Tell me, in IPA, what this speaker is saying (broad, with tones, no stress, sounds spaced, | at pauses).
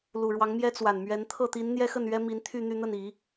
l u˨˩ ɻ w ɑ˧˥ ŋ m j ɛ˥ t͡s w a˨˩ n m ɥ ɛ˧˥ n t̪ʰ ɤ˥˩ t̪ i˧˥ n n̪ j ɛ˥ x ə˥˩ n ɥ ɛ˥ m i˧˥ n t̪ʰ y˥˧ n̪ y˥˧ n̪ ə˥˩ n i˨˩˦